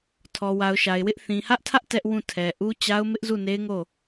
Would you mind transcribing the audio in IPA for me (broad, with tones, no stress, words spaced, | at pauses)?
tʰɔ˨wa˨ʊ̯ʃa˨ɪ̯wɪ˦ʔ θĩ˨hä˦ʔtʰä˦ʔ tɛ˦ʔwũ˦˨ tʰɛ˨ʔu˦ t͡ɕa˦ʊ̯ mɪ˦ʔzu˦˨ne˦ɪ̯ŋo˦˨